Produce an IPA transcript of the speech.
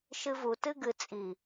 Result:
ʃ ɨ v u t ɨ ɡ ɨ t͡sʼ i

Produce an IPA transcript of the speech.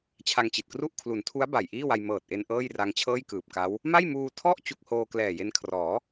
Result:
t͡ɕʰ a˧ ŋ t͡ɕ i˨˩ t̚ k r u˥˩ ʔ kʰ l u˩˦ n tʰ u˦˥ a̯ b a˨˩ j ʔ iː˥˩ w a˧ j m ɤː˨˩ t̚ ʔ e˧ n ʔ ɤː˥˩ j r a˧ ŋ t͡ɕʰ ɤː˥˩ j k ɯː˨˩ p̚ k a˦˥ w | m a˥˩ j m uː˧ tʰ ɔ˥˩ ʔ t͡ɕ u˥˩ k̚ h oː˧ k l ɛː˨˩ j e˧ n kʰ r ɔː˩˦

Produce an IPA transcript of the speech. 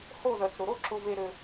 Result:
h o˦˨ ð œ˨ t͡s ɾ ʊ˨ ɾ o˦ ǁ ʊ˦ v e˦ ɾ ø˧

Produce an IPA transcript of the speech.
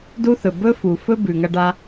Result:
d u˥ θ ɵ˩ b ɵ˥ f u˩ f ɵ˥ b ʉ˩ ŋ ɐ˥ ɖ a˥

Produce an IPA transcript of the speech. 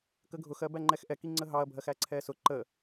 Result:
k ə ɡʱ ʊ x ɜ b æ ŋ͡ǃ ɛ x ʔ ɛ k i ŋ͡ǀ ə ɦ ɑ ɐ̯ bʱ ɜ x æ ǀʰ ɛ s ʊ ǃ ə

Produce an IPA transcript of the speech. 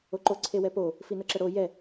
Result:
o ǃ o ǀʰ e w ɛ p o | f i n ɤ ǁ ə ɽ o j ɛ

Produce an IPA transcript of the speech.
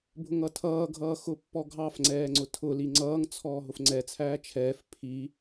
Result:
bʱ ʊ ŋ ʌ tʰ ʌː ɡʱ ʌː x ʊ pː ɔ ɡʱ ɑ f ŋ͡ǀ ɛː ŋ͡ǀ ʊ tʰ ʊ l i ŋ͡ǀ ʌː ŋ t͡sʰ ɔː ɦ ʊ f ŋ͡ǀ ɛ t͡sʰ æː t͡ʃʰ ɛː f pʰ i

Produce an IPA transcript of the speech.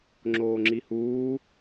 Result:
ŋ͡ǁ oː ŋ͡ǁ i h uː

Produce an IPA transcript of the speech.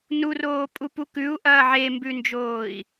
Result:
n u r oː pʼ u p u k ʉ u̯ ʔ ɐː ʕ e m b ʉ n d͡ʒ oː i̯

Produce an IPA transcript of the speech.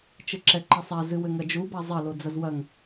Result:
t͡ʃ ɘ ǁ ɛ ǃ ɐ sˤ a z ɨ w ɘ ŋ ɐ d͡ʒ u b a zˤ ɐ l o d͡z ɐ z w ɐ ŋ

